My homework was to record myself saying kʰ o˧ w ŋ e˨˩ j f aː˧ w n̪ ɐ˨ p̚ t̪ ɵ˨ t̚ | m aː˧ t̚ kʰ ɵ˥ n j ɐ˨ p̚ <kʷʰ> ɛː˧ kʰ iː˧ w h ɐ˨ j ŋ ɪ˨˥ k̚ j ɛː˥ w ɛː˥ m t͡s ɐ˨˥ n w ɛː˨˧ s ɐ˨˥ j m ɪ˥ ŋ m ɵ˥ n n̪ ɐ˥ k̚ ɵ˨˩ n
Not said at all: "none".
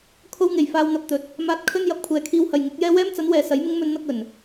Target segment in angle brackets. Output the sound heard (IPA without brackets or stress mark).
kʷʰ